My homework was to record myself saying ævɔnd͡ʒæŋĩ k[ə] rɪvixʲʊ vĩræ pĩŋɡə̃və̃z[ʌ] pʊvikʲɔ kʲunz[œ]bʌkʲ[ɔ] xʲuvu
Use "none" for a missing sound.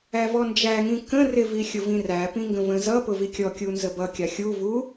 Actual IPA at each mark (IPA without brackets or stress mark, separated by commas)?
ə̃, ʌ, ə, ɑ